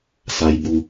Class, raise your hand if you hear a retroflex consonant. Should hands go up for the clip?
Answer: no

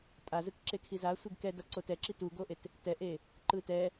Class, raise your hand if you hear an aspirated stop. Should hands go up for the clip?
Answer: yes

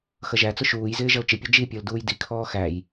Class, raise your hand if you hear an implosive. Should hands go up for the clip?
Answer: no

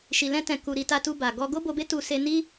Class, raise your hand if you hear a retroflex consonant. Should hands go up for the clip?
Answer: no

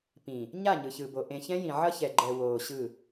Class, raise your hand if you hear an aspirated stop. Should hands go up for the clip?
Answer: no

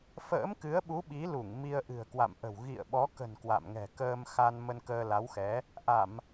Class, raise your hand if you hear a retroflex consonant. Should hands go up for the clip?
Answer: no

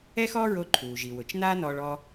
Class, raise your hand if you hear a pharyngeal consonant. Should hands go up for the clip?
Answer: no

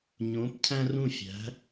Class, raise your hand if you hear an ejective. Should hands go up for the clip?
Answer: no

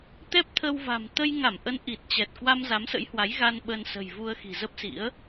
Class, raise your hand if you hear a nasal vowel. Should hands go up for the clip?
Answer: no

